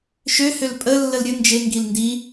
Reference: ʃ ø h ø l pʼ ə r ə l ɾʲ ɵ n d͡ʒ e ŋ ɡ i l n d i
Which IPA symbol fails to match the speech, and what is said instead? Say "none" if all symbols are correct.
r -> lː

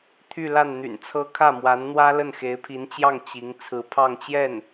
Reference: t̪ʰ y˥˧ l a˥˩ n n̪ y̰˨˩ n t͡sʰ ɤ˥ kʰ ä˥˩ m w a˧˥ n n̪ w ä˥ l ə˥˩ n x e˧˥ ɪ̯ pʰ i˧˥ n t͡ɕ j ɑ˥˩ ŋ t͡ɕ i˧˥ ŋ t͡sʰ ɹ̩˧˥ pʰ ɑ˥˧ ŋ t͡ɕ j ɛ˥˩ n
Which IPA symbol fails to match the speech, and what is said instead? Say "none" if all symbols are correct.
none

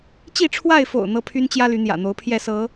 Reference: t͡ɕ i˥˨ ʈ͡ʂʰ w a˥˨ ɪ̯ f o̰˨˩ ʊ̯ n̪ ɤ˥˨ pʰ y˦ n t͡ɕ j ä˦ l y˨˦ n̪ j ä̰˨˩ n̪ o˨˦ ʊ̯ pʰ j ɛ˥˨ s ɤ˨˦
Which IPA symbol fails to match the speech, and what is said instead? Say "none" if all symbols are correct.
none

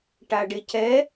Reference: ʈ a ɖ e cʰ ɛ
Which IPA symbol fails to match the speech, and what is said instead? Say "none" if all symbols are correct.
none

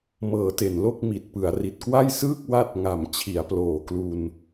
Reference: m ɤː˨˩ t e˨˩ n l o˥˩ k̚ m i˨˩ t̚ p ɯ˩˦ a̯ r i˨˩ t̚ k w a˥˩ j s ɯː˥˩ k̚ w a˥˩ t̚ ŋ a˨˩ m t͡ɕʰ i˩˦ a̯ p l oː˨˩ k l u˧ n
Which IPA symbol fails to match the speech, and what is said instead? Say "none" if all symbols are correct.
none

